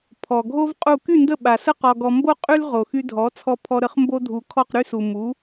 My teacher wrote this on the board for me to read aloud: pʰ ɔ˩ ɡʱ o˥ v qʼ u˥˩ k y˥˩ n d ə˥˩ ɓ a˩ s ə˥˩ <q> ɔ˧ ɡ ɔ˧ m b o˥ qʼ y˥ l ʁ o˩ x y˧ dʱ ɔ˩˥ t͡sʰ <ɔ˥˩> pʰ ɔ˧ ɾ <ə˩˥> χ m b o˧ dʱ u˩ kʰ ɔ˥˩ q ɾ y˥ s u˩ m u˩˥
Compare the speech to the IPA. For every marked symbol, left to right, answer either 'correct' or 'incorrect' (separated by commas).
correct, incorrect, correct